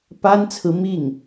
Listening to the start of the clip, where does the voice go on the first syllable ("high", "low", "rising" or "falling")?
high